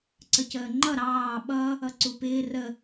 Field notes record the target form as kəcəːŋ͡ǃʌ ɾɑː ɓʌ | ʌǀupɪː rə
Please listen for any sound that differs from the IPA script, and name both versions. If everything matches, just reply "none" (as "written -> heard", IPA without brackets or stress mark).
k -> ǀ